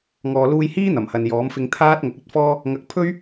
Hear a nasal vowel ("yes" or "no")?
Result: no